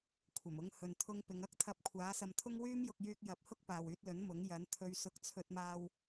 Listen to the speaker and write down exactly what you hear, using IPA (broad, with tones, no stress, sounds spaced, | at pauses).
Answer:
kʷʰ ɐ˨˩ m ʊ˨˧ ŋ h ɵ˨ n t̪ʰ ʊ˧ ŋ p ɪ˨˧ ŋ ɐ˥ k̚ t̪ʰ ɐ˧ p̚ kʷʰ aː˨˥ s ɐ˧ m t̪ʰ ʊ˥ ŋ w yː˥ m j ʊ˧ k̚ j yː˧ k̚ j ɐ˨˥ p̚ h ʊ˥ k̚ p aː˨ w yː˧ t̚ l ɵ˨˥ n m ʊ˨˥ ŋ j ɐ˨˥ n t̪ʰ ɵ˧ ɥ s ʊ˧ k̚ t͡sʰ ɵ˧ t̚ m aː˧ w